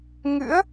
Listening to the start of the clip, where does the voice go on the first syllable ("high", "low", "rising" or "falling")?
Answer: rising